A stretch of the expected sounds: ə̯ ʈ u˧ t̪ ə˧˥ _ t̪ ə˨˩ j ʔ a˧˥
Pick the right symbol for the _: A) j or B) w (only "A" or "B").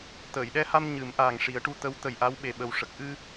B